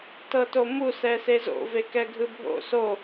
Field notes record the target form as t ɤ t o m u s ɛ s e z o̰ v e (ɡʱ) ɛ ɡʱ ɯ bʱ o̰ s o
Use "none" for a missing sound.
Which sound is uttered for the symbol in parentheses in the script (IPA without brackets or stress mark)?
k